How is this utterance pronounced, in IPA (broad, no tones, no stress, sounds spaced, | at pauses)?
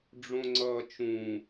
ɖ͡ʐ õ ŋ͡ǀ ʌː t͡ʃ ũ